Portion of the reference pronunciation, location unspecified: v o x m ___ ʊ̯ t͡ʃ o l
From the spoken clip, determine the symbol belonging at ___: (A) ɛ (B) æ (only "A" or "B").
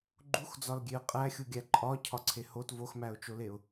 B